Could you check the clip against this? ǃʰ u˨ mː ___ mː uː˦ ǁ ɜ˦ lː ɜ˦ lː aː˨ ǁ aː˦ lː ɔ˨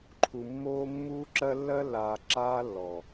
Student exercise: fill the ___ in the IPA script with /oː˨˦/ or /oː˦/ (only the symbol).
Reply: oː˦